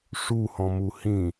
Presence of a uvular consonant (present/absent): absent